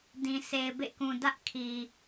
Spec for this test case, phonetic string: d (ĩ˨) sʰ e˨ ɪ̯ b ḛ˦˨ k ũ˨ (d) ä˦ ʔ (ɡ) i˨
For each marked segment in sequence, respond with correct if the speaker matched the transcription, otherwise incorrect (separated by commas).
correct, correct, incorrect